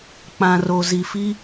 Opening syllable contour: low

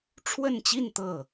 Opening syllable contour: falling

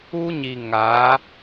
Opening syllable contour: high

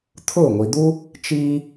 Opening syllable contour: falling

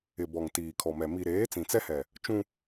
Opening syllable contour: low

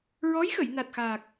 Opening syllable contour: rising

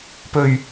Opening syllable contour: low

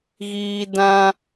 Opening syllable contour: low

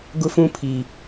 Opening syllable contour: high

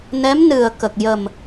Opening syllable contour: rising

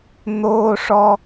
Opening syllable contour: high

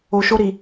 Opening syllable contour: low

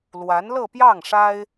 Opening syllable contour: rising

